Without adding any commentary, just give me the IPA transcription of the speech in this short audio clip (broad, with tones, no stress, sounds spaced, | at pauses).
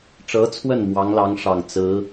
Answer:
ʈ͡ʂ ɤ˧˥ t͡sʰ w ə˥˩ n m w ɑ˧˥ ŋ l ɑ˧˥ ŋ ʂ ɑ˨˩ ŋ t͡s ɹ̩˧˥